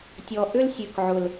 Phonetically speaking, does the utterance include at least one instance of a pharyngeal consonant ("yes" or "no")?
yes